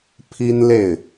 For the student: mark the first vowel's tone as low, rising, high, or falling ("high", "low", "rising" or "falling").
high